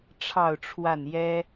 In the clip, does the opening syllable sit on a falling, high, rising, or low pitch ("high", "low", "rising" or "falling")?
falling